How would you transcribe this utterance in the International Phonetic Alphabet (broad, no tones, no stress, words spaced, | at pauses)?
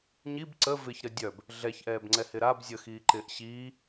ɲib ǀə vɪçɾə dʲœb | ɮɛçʔɛːbŋ͡ǀɛhɪ ɾab zʲəxiːǃɪːʔ ɕiː